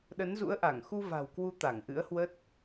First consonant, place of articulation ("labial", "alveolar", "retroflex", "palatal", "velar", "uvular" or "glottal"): alveolar